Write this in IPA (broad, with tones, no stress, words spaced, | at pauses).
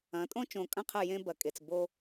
ɐ̃˨˥tʼõ˥ t͡ʃõ˧kʼɐ̃˥qʰɐ˥˨ jẽ˥ bɐ˧kʼe˧t͡s bo˥